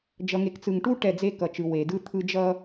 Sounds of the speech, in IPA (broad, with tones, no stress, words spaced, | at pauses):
d͡ʒʌ˨ŋe˨kt͡sɯ˨ŋʈu˦ ʈɛ˦˨d͡ze˦ kʌ˨t͡ʃɯ˨ we˨dɯ˦ t̪ʰɯ˦ d͡ʒʌ˦